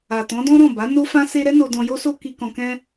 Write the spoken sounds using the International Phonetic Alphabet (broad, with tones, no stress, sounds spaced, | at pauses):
a˨ t ɔ̃˨˦ d ɔ̃˦ ɾ ɔ̃˦˨ b a˨˦ n o˦ f ã˦ s e˦ ɾ ɛ˦ n o˧ d ɔ̃˧ j o˦ s o˦ k i˧ k ɔ̃˧ k ɛ̃˦